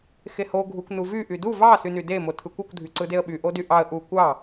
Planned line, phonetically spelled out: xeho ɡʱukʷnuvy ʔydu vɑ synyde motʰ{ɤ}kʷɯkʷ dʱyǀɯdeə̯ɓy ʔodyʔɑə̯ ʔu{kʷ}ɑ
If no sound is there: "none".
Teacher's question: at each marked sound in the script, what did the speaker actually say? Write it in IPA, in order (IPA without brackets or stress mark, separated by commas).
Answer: ɯ, kʷ